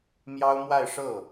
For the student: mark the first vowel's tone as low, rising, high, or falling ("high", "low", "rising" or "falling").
high